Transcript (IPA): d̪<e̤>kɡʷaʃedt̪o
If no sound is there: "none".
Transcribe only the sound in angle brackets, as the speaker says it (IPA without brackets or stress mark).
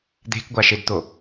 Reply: e̤